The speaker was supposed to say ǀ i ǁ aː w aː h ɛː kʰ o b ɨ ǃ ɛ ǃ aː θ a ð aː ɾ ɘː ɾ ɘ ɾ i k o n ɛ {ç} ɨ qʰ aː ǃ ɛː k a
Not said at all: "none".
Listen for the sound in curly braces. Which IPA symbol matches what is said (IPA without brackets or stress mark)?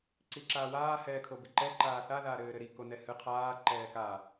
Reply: h